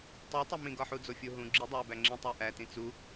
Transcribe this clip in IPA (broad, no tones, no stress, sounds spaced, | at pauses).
tˤ o tˤ o m ĩ ɡ ɒ ħ u d͡z o fʲ o ɦ ũ ɡ͡ǁ i dˤ æ b æ ŋ͡ǁ ĩ tˤ æ ʔ æ t ĩ t͡s u